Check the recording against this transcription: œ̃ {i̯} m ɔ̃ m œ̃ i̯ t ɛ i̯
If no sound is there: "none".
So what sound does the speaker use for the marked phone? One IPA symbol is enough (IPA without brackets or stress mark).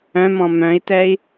none